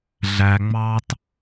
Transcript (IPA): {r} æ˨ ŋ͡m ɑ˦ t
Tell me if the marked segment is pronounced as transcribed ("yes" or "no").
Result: no